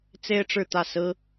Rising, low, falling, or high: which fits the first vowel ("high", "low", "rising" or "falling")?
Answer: high